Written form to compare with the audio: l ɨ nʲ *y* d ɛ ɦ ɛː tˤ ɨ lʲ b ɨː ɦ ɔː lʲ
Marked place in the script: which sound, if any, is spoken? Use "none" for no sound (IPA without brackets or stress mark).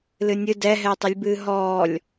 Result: ɨ